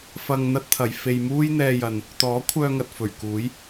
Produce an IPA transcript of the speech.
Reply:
fɐ˨ŋ n̪ɐ˥t̚t̪ʰɐ˨˧j fe˨j muː˥jn̪ɛː˧jɐ˨n | t̪ɔː˨˥kʷʰœː˧ ŋɐ˨t̚fɵ˨˩ɥkuː˨˥j

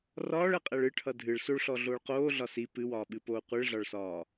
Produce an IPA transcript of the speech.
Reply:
rɒːɭɛqʼɛɭ ɨʈʰʌ dʱɨɭ soɭɬɔɮoːɭ qoːɮɒ si pɨwɒːɓɨpoː qʷɨɭɮɒɭsɒː

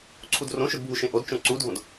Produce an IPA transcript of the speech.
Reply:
ǀʰudrõʃʊd bʱuʃẽʔodt͡ʃõ ǀudʱõd

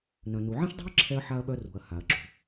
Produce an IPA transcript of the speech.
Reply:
nœ̃˩nu˩ ʕɛ̃˥ʃdˤṳ˥ɐ̯ǁʰɛ˧ɐ̯ ħa˧ɐ̯ɓœ˧ rṳ˩ɐ̯ha˩ɐ̯ǁṳ˩

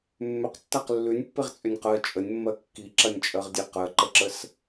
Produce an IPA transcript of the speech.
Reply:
mːʏqtːaq lːʉnʲpːeʁt͡sʼʏnʲ qɜ t͡ʃʼənʲmːɜ kːiǁɐnʲt͡ʃʼɜʁdʲe qɜǃəǁəs

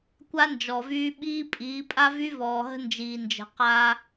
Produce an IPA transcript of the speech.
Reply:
kʷa˦nd͡ʒɔ˨vyː˦ ɓiː˦pʼiː˨˦ pʼa˦vy˦vɔː˨ɦə̤˦ nd͡ʒiː˨nd͡ʒə̤˨ qa˦

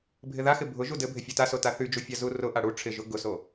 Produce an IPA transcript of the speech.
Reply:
bʱɪðaxɪ bʱʊ ʒudɘbʱɪ fʲotaso taθyd͡ʒu fʲazurʊʔa ɽu ʈ͡ʂʰɪʒʊ ɡʊso

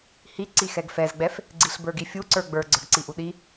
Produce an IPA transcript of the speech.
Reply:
hi ǀixɛɡfɛzɡ͡bɛf | ɡ͡ǀiɬbə˞ɡifʲu ǀə˞ɡ͡bə˞ ɡ͡ǀə˞ɡǀiʔuɗi

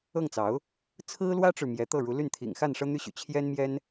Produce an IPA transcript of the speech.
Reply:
ɤ˥˩ŋt͡sɑ˧˥ʊ̯ | t͡sʰɹ̩˥lwä˥ʈ͡ʂɻ̩˨ mjɛ˧˥t̪ɤ˥˩ɻu˧˥ly˥˩n t̪ʰḭ˨˩ŋxa˥˩n ʂɤ˥n̪y˥ɕy̰˨˩ t͡ɕʰjɛ˥nmjɛ˥n

